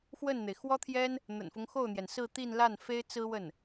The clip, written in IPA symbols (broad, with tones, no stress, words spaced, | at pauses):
xwə˥˩nn̪e˩ɪ̯ xwɔ˥t̪ʰjɛ˥n | n̪ə̰˨˩nfʊ˦ŋxo˥˩ʊ̯n̪jɛ˩n sɹ̩˥˧t̪i˥˧n la˥˩n fe˥ɪ̯t͡sɹ̩˥wə˥˩n